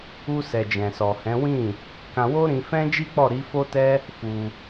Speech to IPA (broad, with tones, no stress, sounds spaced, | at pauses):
u˧ s ɛ˨ d͡ʒ ɛ̃˨ s ɔ˨ h ɛ̃˨˦ w ĩ˦˨ | k ã˧ w o˦ ɾ ĩ˧ f ɛ̃˦ d͡ʒ i˦ k͡p ɔ˦˨ ɾ i˨˦ f o˦ t ɛ˦ | f u˧